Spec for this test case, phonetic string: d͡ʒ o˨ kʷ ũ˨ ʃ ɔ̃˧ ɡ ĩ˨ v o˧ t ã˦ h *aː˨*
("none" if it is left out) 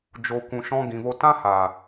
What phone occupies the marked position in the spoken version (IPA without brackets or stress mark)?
aː˨